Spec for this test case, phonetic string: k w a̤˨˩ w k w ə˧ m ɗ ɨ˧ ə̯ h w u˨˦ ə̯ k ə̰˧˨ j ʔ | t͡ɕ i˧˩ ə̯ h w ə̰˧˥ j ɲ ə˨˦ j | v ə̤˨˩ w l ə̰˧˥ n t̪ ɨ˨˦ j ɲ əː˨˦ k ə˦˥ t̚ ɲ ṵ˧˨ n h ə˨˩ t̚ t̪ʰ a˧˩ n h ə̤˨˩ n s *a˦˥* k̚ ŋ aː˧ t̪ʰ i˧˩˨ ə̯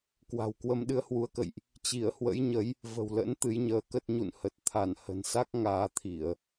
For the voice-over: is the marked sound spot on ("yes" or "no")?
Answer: yes